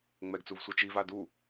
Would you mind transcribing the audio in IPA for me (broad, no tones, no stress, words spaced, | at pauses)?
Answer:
ŋ͡mɛɡt͡suv sʷɯt͡ʃiva du